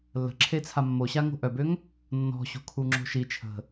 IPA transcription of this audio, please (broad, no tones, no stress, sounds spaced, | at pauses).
lː ə̤ ǁʰ e t͡sʰ a mː o ɕ a ŋ o̤ ʔ œ b ø ŋ | nː ɔ̤ ɕ o̤ kʰ u ŋ͡ǁ o̤ ʃ i t͡ʃʰ ə̤